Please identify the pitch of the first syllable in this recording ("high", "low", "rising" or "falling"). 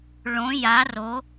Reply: rising